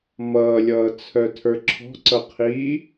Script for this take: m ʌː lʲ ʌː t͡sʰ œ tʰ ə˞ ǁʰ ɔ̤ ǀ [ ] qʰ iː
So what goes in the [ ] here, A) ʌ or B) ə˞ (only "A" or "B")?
A